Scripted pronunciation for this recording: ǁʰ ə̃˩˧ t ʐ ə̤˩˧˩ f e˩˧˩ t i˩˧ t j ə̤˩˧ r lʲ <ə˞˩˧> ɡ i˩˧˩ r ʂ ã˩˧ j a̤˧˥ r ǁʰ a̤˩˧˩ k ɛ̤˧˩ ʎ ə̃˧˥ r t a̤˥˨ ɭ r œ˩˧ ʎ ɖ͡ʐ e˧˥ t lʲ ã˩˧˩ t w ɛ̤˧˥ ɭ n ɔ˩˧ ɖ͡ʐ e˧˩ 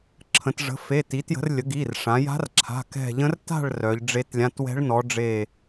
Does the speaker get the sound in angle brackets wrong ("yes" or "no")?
yes